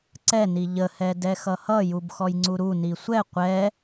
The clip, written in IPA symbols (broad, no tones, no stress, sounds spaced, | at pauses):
ǀ ɛ n i ʎ ə h ɛ d ɛ x ʌ h ʌ j u b x ɔ j ŋ͡ǀ u ɾ u n i sʷ ɛ qʷ ɛ